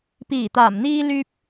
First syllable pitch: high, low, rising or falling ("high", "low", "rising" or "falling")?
low